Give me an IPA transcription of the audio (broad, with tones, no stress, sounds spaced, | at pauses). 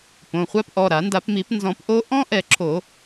p õ˩˧˩ χʷ a˦˥ p ʔ ɔ˩˧˩ ɾ a˨˩˦ n d a˨˩˦ p m i˨˩˦ p n z ɔ̃˨˩˦ p ʔ o˦˥ ʔ ɔ̃˦˥ ʔ ɛ˨˩˦ ǁʰ o˨˩˦